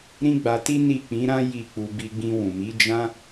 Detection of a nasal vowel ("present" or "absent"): present